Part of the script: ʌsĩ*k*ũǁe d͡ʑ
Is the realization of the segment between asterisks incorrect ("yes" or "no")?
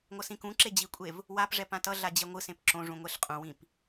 no